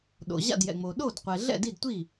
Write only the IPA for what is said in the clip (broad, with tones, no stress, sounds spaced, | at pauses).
ɗ o̰˩ ʑ a̰˥˩ d j ɛ̰˩ ŋ͡m o˩ ɗ o˥˩ d qʷ ɛ˩ ɮ ɛ̰˥˩ d i˥˩ d tʷ i˥˩